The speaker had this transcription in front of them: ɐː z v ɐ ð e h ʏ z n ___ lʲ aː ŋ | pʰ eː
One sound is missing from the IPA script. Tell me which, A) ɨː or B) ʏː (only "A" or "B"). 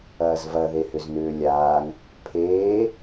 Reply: B